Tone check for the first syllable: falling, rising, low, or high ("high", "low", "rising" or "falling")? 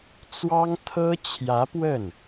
high